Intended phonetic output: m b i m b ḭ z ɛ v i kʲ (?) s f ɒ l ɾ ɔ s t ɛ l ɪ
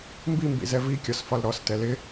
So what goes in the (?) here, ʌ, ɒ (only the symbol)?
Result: ɒ